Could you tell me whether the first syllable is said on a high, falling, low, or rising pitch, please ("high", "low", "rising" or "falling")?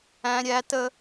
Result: high